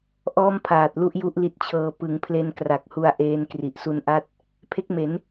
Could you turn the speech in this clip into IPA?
ʔ ɔː˥˩ m pʰ aː˨˩ t̚ l u˥˩ ʔ j u˥˩ ʔ l i˦˥ t̚ t͡ɕʰ ɤː˧ p ɯ˩˦ ŋ pʰ l e˧ n k r a˨˩ k̚ h u˧ a̯ ʔ eː˧ n k r i˨˩ ʔ s u˦˥ n ʔ a˥˩ t̚ | pʰ e˦˥ k̚ m e˩˦ n

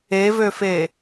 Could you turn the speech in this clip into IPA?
e v ø f e

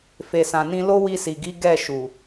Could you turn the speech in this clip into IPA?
f e˨ s ã˨ n ĩ˧ l o˦ w i˧ s i˨ ɡ i˨˦ ɡ ɛ˦˨ ʃ u˨

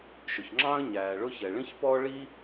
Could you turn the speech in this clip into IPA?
ʃ ʊ˩ ç ŋ͡ǁ ɑ̃ː˥ ə̯ ɲ æː˩ ɭ ʊ˥ ç ɛ˩ ɭ ĩ˥ ç p ɔː˥ ɭ i˥

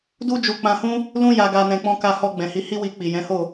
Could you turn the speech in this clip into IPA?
d u˦ d͡ʒ u˧ k͡p ã˧ h ũ˦ | l ũ˦ j a˧ ɡ a˧ n ɛ̃˨ k͡p ɔ̃˧ k a˧ h ɔ˧ ɡ͡b ɛ̃˨ h i˨˦ h i˦ w i˧ k͡p i˨ j ɛ̃˨˦ h o˦˨

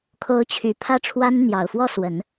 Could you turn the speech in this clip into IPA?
kʰ o˧˥ ʊ̯ t͡ɕʰ y˨˩ pʰ ä˥˩ ʈ͡ʂʰ w a˥ n n̪ j ɑ˨˩ ʊ̯ f w ɔ˥˩ s w ə˨˩˦ n

